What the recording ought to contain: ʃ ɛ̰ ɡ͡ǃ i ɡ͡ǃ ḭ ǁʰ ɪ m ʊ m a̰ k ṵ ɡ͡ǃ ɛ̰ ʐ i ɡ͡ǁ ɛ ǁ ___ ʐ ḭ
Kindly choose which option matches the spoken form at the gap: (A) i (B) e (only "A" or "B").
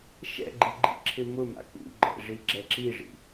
A